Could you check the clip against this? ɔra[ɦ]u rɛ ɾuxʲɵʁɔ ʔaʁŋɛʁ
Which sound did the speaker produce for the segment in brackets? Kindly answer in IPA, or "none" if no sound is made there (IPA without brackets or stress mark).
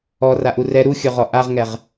ʔ